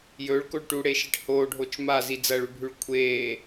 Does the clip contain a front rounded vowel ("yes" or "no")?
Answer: no